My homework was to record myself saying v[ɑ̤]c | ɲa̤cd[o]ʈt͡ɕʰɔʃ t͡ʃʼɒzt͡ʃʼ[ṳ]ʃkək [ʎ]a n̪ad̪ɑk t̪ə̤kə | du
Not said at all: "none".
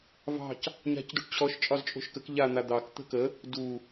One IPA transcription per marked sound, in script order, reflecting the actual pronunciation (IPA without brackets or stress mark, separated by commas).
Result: ɑ̤, u, o̤, ʎ